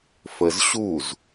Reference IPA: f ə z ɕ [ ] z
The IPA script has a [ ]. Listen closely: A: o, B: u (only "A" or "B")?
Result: B